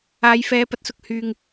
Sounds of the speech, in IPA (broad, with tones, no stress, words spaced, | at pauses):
aː˨˧jfɛː˨˧pɐ˨t̚sʊ˧k̚ hyː˨ŋ